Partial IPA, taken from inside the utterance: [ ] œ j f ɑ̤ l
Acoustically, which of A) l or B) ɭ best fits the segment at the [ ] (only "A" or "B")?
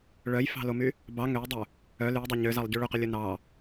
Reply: B